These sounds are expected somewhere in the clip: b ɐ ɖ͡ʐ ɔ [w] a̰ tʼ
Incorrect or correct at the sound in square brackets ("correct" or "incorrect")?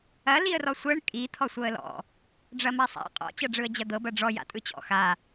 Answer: incorrect